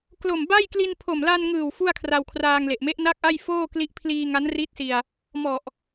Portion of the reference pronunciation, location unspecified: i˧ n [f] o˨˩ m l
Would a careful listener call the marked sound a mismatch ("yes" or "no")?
yes